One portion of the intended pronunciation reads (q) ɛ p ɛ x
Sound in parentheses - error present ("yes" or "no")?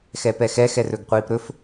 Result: yes